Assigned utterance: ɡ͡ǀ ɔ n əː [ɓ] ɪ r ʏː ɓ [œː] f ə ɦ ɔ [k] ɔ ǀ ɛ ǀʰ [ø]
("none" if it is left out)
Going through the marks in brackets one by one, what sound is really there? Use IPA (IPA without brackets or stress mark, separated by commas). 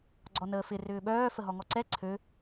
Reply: f, œː, ŋ, ø